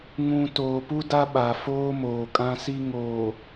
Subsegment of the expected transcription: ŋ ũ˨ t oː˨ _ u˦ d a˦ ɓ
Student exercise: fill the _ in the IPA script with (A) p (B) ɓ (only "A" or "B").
A